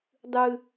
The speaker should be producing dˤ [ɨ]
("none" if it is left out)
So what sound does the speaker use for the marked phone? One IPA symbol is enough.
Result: ɨ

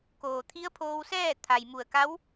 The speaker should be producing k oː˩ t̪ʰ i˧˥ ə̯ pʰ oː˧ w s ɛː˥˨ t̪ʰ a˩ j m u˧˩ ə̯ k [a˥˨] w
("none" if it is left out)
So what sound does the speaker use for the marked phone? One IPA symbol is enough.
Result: a˧˥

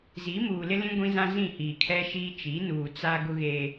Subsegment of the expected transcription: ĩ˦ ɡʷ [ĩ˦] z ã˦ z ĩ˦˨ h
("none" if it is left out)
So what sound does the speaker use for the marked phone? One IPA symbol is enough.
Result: ĩ˦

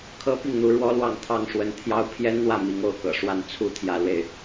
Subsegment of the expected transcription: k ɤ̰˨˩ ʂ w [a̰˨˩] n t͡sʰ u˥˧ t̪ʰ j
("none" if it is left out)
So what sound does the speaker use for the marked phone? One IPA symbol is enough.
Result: a˥˧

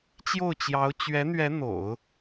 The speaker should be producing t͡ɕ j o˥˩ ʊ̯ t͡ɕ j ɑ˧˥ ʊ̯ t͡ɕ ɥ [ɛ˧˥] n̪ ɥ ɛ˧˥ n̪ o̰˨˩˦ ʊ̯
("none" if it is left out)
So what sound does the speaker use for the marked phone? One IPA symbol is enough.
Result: ɛ˧˥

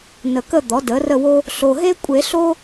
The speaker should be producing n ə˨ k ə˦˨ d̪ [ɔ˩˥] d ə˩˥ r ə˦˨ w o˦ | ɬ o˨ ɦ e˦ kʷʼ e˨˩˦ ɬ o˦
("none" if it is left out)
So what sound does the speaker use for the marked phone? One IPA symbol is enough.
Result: ɔ˩˥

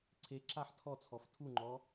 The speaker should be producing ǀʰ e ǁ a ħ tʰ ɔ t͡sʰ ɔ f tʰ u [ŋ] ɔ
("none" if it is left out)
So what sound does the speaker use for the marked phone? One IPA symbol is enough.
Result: ŋ͡ǃ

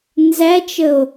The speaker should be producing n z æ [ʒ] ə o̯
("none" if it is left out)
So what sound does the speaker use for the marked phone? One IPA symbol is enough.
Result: t͡ʃ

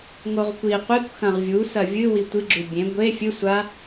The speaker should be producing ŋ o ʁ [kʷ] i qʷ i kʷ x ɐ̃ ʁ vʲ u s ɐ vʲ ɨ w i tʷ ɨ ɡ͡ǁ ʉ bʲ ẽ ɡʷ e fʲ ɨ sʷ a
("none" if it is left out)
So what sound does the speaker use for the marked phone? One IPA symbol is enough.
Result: kʷ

